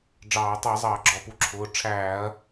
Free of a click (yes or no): no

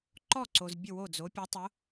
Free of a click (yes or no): no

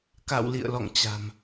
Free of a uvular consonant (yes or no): yes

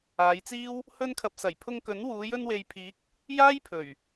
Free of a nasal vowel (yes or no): yes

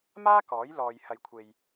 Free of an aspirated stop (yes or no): no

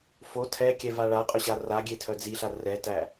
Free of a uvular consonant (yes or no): no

